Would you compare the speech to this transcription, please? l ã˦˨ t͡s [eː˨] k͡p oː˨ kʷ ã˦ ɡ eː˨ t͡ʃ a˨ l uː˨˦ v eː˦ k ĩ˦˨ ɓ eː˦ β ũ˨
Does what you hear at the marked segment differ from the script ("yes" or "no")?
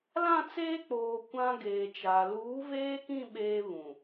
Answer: yes